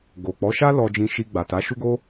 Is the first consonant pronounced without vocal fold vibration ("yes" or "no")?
no